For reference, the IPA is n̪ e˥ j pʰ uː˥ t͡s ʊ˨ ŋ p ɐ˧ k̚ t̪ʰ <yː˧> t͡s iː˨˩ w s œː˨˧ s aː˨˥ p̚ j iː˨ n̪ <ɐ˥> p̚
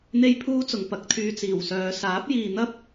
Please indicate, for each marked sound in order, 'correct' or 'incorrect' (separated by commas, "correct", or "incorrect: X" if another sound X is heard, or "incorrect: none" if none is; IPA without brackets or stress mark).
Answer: correct, correct